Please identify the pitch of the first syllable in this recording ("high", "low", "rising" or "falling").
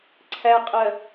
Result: low